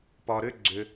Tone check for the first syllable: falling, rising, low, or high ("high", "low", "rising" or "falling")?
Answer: low